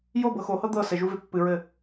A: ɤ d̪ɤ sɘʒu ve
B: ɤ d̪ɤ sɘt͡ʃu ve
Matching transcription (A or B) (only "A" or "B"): A